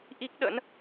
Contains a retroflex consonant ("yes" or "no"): no